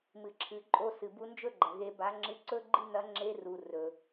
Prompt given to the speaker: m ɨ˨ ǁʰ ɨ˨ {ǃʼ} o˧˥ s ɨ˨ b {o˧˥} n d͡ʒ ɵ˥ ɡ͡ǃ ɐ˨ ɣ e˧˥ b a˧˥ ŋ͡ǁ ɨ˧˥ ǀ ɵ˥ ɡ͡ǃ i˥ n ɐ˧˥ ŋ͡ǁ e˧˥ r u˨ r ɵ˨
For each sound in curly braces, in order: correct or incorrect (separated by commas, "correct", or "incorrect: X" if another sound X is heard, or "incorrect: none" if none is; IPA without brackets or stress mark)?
correct, incorrect: u˧˥